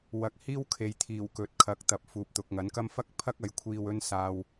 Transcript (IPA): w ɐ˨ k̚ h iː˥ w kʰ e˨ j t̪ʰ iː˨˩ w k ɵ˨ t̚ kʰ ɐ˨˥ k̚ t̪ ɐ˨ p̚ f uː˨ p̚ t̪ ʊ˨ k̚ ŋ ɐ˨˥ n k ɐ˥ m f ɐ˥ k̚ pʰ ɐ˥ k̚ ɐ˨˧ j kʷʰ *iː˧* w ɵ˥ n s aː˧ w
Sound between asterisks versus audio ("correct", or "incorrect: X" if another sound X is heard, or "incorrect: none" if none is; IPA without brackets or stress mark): correct